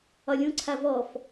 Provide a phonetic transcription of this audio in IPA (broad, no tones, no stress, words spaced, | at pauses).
ɒlʲũǀʰa vɔf